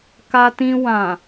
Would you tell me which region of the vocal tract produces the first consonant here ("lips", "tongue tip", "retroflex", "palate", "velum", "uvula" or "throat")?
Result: velum